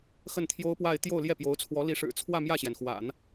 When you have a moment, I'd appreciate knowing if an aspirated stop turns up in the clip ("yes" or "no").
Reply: yes